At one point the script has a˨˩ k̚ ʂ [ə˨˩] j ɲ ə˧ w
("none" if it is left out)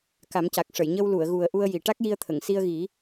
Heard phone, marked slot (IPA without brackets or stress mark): ə˨˩˨